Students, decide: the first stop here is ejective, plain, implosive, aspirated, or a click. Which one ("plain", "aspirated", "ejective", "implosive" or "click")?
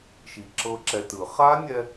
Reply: click